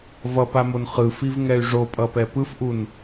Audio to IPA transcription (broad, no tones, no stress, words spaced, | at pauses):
vʌpamon χɯfivŋɛy̯ ʐopʼʌpɛ pɯfʔun